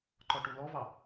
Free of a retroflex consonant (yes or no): no